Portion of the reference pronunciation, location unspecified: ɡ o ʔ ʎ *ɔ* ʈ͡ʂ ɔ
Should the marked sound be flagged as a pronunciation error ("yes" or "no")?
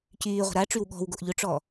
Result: yes